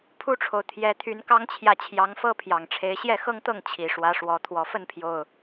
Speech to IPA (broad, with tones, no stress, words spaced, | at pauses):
pʰu˦ʈ͡ʂʰo˨ʊ̯ t̪ʰjɛ˨˦t̪ʰy˨˦nkɑ˦ŋt͡ɕʰjä˨ t͡ɕʰjɑ˨˦ŋfɤ˦pʰjɑ˨˩ŋʈ͡ʂʰe˨˦ɪ̯ ɕjɛ˥˨xɤ˦ŋt̪ɤ˥˨ŋ t͡ɕʰi˨˩ʂwä˨˦ʂwɔ˨˦ t̪ʰwɔ˨˩fə˥˨npʰjo˨˩ʊ̯